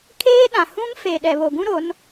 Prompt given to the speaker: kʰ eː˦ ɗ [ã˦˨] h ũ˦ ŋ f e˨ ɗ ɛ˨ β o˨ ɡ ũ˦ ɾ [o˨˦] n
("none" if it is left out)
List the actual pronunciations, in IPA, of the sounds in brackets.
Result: ã˨, o˨˦

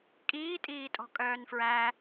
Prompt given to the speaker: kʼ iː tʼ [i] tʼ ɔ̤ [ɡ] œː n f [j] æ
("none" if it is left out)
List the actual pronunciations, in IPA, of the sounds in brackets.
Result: iː, kʼ, ɹ

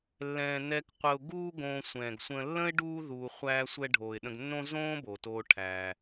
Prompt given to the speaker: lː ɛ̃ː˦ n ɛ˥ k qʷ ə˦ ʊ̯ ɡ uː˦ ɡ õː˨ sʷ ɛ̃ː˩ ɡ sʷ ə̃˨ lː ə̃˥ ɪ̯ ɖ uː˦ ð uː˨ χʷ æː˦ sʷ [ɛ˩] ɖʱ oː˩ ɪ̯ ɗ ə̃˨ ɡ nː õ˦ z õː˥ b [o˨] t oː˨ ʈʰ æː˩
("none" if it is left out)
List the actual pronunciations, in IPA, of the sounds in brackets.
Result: ɛ˦, o˩

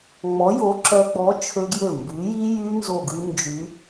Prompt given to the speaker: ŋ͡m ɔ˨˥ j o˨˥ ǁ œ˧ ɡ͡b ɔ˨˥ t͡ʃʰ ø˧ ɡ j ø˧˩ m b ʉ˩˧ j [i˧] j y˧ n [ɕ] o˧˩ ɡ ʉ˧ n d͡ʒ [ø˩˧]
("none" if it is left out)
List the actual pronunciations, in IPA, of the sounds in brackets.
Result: i˧, z, y˩˧

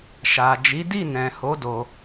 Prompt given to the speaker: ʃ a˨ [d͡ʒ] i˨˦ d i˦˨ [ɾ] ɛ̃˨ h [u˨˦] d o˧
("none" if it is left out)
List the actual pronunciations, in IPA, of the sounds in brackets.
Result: d͡ʒ, n, o˨˦

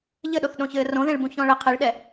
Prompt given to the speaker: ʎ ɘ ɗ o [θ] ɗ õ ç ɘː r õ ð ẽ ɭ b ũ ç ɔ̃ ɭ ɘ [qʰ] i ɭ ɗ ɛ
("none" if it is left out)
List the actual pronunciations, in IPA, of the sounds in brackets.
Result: θ, qʰ

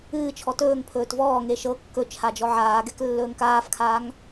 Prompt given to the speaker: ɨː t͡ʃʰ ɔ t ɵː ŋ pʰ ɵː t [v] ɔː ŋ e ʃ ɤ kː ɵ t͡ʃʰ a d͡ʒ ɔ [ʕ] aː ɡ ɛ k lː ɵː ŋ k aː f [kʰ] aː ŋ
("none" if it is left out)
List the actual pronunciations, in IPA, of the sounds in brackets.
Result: v, ʕ, kʰ

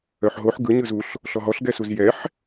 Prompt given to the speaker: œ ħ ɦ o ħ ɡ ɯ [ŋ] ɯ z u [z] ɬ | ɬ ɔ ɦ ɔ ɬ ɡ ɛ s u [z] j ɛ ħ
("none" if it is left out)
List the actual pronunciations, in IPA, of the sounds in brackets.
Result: ɲ, none, z

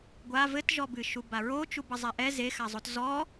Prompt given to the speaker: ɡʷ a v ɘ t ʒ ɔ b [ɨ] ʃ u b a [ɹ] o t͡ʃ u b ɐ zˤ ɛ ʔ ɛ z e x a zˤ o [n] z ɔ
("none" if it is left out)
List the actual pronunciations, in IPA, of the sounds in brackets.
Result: ɨ, ɹ, t

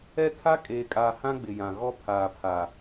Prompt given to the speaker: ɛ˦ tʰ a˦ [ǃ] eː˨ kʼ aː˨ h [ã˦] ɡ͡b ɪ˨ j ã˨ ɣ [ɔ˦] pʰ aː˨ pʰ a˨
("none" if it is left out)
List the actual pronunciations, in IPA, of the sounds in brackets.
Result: kʼ, ã˦, ɔ˦

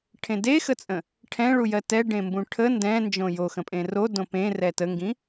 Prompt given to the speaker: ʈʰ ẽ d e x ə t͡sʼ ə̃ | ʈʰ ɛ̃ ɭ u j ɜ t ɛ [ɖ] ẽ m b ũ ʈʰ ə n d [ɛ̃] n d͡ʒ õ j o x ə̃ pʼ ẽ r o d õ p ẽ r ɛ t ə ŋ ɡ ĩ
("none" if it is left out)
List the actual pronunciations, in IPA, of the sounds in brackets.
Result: ɖ, ɛ̃

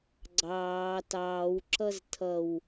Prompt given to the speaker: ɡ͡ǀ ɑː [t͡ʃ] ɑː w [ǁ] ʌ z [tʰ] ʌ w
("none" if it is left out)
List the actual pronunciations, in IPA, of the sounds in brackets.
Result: t, ǁ, tʰ

